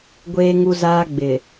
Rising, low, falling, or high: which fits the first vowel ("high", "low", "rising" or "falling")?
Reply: high